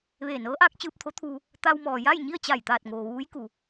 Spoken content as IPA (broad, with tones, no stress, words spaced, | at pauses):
ʋeː˧˩nɤː˧˥ʔaː˧˥k̚ t͡ɕɯː˧p̚t̪ʰo˧˥t̪ʰuː˧ | t̪a˧wmɔː˩ja˥˨j ɲi˥˨ə̯t͡ɕa˧˩jt̪aː˧˩t̚ŋoː˩ ʋuː˧˥jku˩